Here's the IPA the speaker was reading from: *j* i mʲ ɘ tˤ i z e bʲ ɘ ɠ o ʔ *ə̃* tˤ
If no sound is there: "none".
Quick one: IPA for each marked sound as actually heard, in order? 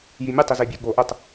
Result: j, ə

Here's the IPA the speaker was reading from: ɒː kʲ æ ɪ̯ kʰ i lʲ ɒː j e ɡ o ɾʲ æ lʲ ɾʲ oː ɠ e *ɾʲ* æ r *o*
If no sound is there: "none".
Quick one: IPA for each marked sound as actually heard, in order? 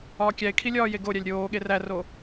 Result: r, o

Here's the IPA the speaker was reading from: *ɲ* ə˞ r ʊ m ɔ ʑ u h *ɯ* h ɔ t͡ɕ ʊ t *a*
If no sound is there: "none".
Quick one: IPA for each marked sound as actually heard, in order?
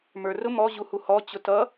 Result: m, u, ʌ

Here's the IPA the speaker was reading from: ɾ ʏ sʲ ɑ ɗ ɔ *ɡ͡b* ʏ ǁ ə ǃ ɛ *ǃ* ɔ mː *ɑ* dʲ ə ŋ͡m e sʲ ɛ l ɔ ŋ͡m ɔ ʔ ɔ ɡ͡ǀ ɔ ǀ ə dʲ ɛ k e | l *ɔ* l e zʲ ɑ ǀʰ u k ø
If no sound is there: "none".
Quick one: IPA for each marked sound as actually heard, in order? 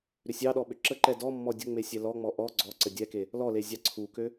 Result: ɓ, d, ɔ, ɔ

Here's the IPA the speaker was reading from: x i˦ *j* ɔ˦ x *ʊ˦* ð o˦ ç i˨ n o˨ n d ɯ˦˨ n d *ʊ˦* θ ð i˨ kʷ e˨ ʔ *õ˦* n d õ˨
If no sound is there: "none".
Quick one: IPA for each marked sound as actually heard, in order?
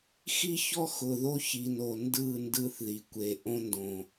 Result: ç, ʊ˨, ɯ˦, õ˦

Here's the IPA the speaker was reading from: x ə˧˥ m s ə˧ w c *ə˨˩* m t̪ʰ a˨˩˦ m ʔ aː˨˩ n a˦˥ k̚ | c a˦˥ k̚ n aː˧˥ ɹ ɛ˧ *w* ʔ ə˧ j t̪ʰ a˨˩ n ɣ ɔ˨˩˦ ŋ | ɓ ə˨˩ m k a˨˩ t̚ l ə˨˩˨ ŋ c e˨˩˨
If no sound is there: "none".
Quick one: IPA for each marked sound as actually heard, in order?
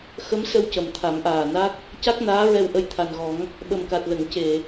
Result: ə˨˩, w

